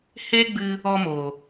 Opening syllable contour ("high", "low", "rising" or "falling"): high